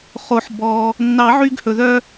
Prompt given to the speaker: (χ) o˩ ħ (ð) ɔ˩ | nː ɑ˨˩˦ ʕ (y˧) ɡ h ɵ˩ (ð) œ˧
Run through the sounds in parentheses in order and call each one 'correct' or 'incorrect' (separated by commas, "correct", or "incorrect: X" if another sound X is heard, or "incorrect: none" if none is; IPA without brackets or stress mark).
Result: correct, incorrect: b, correct, correct